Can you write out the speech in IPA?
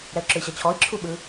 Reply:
ɾ ɛ u̯ ǁ ɯ i̯ ɕ ʌ t͡ɕʰ ɔ i̯ ǁʰ u ɓ ɯ

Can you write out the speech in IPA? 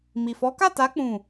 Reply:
m i˨ f ɔ˨˦ k a˦˨ t a˨˦ k͡p ũ˦˨

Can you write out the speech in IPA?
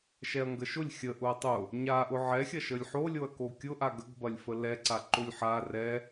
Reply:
ʃ ɛ ɐ̯ ŋ ɡ ə ʃ ʊ lʲ xʲ ə ʔ ʊ ɐ̯ tˤ ʊ | ɲ a ʔ ʊ ʕ ɛ xʲ ɐ ʃ ə lʲ ħ o lʲ o ɐ̯ k o kʲ ʊ ʔ a ɡ ə ɡ b ɐ lʲ f ə l ɛ ǀ a ǃ ʊ lʲ ħ a r ɛ

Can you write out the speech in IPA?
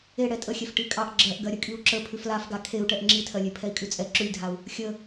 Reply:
e ɽ ɛ tʼ ə xʲ ɛ f ʈ i kʼ ɑ ʔ ɡ͡ǁ ɜ ʔ ɡ ɜ ɾʲ ə kʼ i u̯ ǁ ə pʰ ʉ f l a f ɡ a kʰ e u̯ ʈ ɛ ʔ ŋ͡ǁ i tʰ ɜ lʲ e pʰ ɛ i̯ kʼ ʉ t͡sʼ ɛ ǁ ʉ lʲ dʱ a u̯ | xʲ ə

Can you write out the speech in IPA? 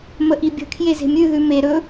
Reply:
m ə ʔ i bʲ ə̤ kʰ j e z e̤ mʲ ʉ ð ʉ m e ɾ ɵ

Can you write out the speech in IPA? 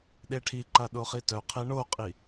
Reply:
ɗ e ʈʰ i ǃ a ɗ o χ i t œ qʰ e ɳ o qʼ i

